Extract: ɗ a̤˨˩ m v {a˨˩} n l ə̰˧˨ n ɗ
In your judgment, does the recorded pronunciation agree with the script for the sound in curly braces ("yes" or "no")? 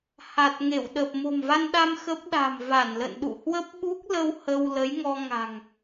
no